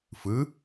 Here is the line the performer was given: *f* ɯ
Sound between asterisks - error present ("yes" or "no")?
no